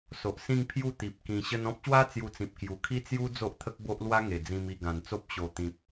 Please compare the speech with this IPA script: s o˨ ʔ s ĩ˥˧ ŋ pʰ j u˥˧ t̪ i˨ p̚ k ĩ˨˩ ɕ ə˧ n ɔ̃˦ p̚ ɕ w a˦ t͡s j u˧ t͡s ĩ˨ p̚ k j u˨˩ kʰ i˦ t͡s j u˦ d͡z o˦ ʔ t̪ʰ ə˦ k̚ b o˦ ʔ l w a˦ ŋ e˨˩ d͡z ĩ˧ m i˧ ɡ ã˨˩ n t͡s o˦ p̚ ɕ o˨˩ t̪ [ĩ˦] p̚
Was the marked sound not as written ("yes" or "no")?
yes